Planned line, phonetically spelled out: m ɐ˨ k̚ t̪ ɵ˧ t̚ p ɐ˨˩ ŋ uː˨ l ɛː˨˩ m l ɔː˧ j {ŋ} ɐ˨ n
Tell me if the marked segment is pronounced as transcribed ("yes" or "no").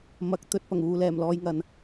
yes